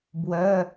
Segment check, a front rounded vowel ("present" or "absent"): present